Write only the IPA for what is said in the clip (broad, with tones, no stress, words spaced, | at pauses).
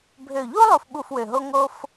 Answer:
bʱø˨˩ʎu˥ lˠu˦˨fɓu˦˨fwø˨˩ɦo˥ ŋo˥f